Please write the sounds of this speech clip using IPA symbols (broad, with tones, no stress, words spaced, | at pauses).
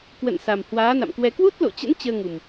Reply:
kwə̰˧˨n sa˨˩mhwaː˨˦na̰˧˨mkwɛ˧ kwu˦˥t̚lo̰˧˨t͡ɕə̰˧˥n t͡ɕəː˧ŋu˨˩m